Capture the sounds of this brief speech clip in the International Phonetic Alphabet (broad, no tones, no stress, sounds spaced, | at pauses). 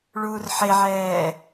ɭ uː r ħ e ʕ ɛː